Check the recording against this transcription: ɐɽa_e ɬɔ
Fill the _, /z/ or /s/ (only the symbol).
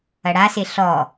s